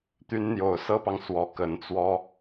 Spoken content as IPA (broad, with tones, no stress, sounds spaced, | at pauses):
t̪ y˧˥ n n̪ j o˨˩ ʊ̯ s ɤ˥ p ɑ˨ ŋ s w ɔ˧˥ k ə˧˥ n t͡s w ɔ˥